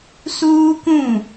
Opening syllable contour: high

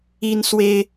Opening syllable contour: high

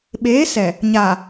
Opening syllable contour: rising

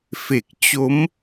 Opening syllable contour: low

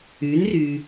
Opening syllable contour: rising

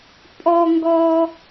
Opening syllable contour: high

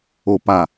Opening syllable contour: low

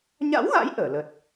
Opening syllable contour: rising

